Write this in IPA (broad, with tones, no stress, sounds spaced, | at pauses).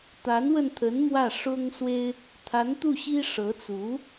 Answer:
t̪ a˧˥ n w ə˧ n t̪ʰ ə˧˥ n m w ä˥˩ ʂ ʊ˥ ŋ s w e˥ ɪ̯ | t̪ʰ a˧˥ n t̪ u˥˩ ɕ i˥ ʂ ɤ˧˥ t͡s u˧˥